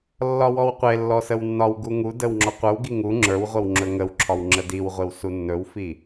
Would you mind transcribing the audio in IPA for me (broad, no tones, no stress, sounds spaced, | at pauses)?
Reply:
lː ɒ w ɔ w qʷ e lː ɔ s ə w nː ɒ w ɡ u ŋ u d ə w ŋ͡ǁ ɔ qʷ ə˞ w ɡ i ŋ u ŋ͡ǁ ə˞ w ʁʷ ə w ŋ͡ǁ ɵ ŋ ə w ǁʰ ɒ w ŋ͡ǁ ə d i w ʁʷ e w s u nː ɵ w f i